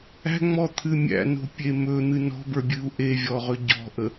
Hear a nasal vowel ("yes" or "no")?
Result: no